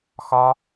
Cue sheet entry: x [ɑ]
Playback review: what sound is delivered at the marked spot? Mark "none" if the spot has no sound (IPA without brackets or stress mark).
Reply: ɒ